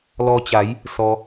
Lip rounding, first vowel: rounded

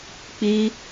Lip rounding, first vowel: unrounded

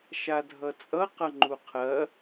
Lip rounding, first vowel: unrounded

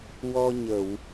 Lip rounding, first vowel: rounded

